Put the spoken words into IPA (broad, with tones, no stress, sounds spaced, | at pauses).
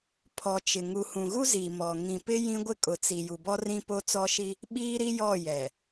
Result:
pʰ ɔ˨ t͡ʃ ɪ˨ ŋ u˨ h ũ˨ ɣ u˦ z iː˨ m ɔ˨ ŋ ĩ˨ p ɪ˦ j ĩ˦ ɡʷ ɪ˦ kʼ ʊ˨ t͡s i˨ j u˨ b ɔ˦ r ĩ˦ p o˦ t͡s ɔ˦ ʃ i˦ | ɓ iː˦ ɾ i˦ j ɔ˦˨ j ɛ˨